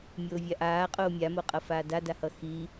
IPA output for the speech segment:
mʲ oː vʲ a ʔ aː qʼ oː mʲ a m o qʼ ʌ f aː d a d a h ʌ x iː

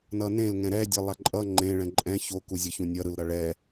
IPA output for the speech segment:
n ʌ n ẽ l ŋ ɛ̃ ɾ ɛ dʲ ʌ lˠ a ǃʼ ʌ ŋ͡ǃ ẽ ɭ ɛ̃ ǃʼ ɛ̃ ç o k u zʲ ʌ ç ũ nʲ ʌ ɾ ɯ l ɾ ʌ ɭ ɛ

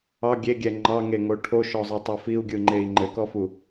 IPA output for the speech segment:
ɑ ɡʲ e ɡʲ ɛ ŋ͡ǃ ɑ ŋ e ŋ o ʈʰ o ʃ ɔ zˤ e tˤ ɛ f i u̯ ɡʲ ɯ ŋ͡ǃ e i̯ ŋ͡ǃ ɘ k ɔ f u

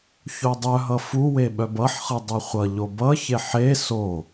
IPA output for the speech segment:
ç o dˤ œ ɦ ʌ f u w e ɓ œ b ʌ ħ χ ɯ dˤ ɯ χʷ ʌ ʎ o b ʌ ç e ħ e s o

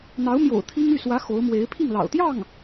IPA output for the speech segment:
n̪ ɑ˧˥ ʊ̯ m j o̰˨˩ ʊ̯ t̪ʰ i˥ ŋ y˥˩ s w ä˧˥ x o˧˥ ʊ̯ m w e˧˥ ɪ̯ pʰ i˥˩ ŋ l ɑ̰˨˩ ʊ̯ t̪ j ɑ˥˩ ŋ

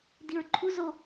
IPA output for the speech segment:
d i ɹ ǃʰ u z o

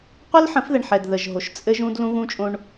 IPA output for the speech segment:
qʷ ɛ˦ l ħ ə̃˨˦ f ð ɛ˨ ɳ ħ ɛ˨ d ð ə˨ ʒ ɦ o˨ ʃ t͡sʼ ɘ˦ ʒ ũ˦ d l ũ˦ ɣ ũ˦ t͡ʃʼ õ˦ ɳ

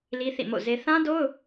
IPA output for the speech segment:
l i˦ θ ḭ˦˨ m o̰˦˨ z e˦ θ ã˦ d o˦ ʊ̯

